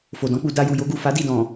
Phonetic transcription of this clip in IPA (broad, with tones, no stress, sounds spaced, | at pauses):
f o˨ d ɔ̃˨˦ k͡p u˧ d a˧ j u˨ j o˨˦ ɡ u˦˨ f a˨˦ d i˦˨ d ɔ̃˨